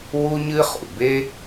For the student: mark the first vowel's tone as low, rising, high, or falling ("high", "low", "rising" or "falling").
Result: high